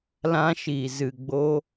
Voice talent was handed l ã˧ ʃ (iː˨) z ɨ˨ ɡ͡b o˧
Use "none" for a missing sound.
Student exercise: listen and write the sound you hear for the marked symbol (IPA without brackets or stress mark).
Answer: iː˨